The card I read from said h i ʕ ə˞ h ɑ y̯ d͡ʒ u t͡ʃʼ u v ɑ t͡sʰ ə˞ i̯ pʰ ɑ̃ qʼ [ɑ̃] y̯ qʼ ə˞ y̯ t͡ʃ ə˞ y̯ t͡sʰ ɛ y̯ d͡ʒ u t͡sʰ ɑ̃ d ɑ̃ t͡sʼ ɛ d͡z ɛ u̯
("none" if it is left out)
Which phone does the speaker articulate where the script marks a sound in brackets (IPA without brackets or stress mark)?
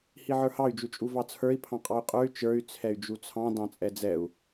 ɑ